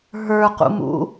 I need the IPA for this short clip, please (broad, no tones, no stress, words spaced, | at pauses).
ɦə˞qṵmṵ